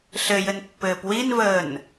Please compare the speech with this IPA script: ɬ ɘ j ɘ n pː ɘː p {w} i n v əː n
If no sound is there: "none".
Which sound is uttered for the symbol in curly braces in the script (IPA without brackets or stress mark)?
w